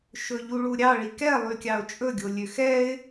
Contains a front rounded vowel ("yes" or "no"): yes